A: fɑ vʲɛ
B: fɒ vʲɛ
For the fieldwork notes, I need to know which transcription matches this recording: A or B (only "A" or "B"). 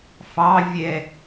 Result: A